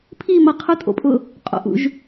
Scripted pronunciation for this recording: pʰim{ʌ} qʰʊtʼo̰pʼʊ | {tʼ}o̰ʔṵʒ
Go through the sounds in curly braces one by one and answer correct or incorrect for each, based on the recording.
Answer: correct, incorrect: qʼ

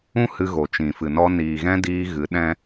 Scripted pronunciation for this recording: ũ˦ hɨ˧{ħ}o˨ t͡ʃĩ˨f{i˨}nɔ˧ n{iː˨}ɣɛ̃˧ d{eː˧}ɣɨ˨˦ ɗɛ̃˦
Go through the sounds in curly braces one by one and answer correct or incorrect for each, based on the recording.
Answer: incorrect: ɣ, incorrect: ɨ˨, correct, incorrect: iː˧

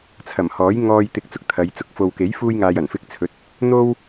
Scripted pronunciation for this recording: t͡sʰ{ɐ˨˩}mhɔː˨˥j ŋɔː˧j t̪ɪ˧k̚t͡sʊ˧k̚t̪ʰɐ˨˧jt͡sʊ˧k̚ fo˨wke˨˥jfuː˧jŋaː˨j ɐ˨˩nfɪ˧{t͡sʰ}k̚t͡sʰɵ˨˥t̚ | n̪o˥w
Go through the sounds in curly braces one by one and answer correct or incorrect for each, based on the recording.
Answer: correct, incorrect: none

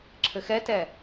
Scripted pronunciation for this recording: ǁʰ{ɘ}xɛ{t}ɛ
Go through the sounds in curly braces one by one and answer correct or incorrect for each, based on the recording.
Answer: correct, correct

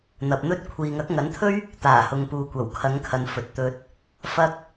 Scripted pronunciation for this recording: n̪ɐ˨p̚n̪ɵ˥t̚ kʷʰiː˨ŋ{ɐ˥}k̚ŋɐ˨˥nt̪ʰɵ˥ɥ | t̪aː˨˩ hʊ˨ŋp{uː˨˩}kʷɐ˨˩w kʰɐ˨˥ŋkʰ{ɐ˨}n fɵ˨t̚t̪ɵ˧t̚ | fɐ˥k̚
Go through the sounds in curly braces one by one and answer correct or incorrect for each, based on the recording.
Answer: incorrect: ɐ˨˥, incorrect: uː˨, correct

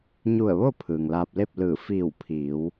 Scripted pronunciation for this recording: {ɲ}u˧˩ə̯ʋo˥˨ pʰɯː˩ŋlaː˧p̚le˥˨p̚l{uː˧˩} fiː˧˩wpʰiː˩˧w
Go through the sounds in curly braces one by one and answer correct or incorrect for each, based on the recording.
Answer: correct, incorrect: ɯː˧˩

